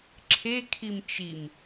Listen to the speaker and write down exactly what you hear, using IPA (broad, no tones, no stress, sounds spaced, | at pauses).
ǁʰ e kʰ i m t͡ʃ i m